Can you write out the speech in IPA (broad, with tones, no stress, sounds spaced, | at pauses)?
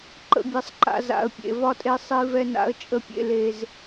ǃ ə̰˨ bʲ ɛ˨ sˤ ǃ a̰˨ z a̰˨ ə̯ pʲ ḛ˨ v ɒ˦ tʼ e˦ sˤ i˦ v ɛ˦ n a̰˦ ə̯ t͡ʃʼ ə˦ pʲ ḛ˦ l e˦ z